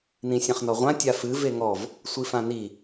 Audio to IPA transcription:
n ĩ sʲ ɛ̃ χ n ɔ ʁʷ ã tʲ a f ɨ v e ŋ ɔ v | sʷ i f ã n i

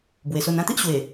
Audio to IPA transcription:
b w e˨˩ s o˧ n ã˥˧ t̪ i˦ ʔ ɕ w e˨˩

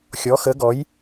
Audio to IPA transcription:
xʲ ɔ˩˥ x ə˩˥ ɡ ɔ˩˥ j

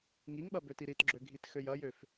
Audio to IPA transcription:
ŋ i ŋ ɓ ɐ b ø t i ɾ i t ɡ͡ǁ ø ɡʱ i t x ø j ɐ j ø f

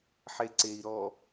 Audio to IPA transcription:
ħ e ǀ e i̯ ɾ ɔ

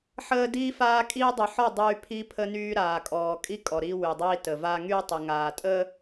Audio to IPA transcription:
ħ əː˦ d iː˦ f aː˦ kʼ iː˦ dˤ y˨ ħ ɔ˦˨ dˤ yː˦ pʰ i˦ pʰ ə˦ n yː˦ ɾ aː˨ kʼ ɔː˨ kʼ i˦ kʼ ɔ˨ ɾ i˦ w y˨ dˤ iː˦ t ə˨ v a˦ ŋ y˦ tˤ ə˨ ŋ aː˨ tʼ ə˦

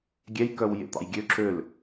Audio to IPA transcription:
ɡʲ ɛ j k œ w j ḛ t̪ ɑ̰ j ɡʲ ø ǁ ø l

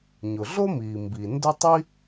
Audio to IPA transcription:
ɲ ʊ˩ ɮ o˥ m iː˩ m b i˩ n d ʊ˥ tˤ i˥

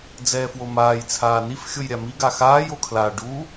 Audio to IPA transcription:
d͡z ɛː f w o m aː j t͡sʰ aː n i f xʲ o j ɾʲ a m i ɡ a x aː j o kʰ l a ɖ u

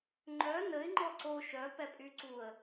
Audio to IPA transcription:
ŋ͡ǃ œ n ə ɪ̯ ŋ͡ǃ ɔ ǀ o ʃ œ p ɛ pʼ y ǀ u ə̯

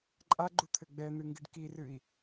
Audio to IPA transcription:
ǃʼ a ɡ͡ǃ u t̪ʰ ɘ ɡ͡b ɛ n̪ ɨ ŋ ɡ ɨ ɖ k i r ɨ i̯

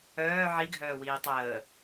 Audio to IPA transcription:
œː ʕ i ɡʱ œː w iː tˤ əː

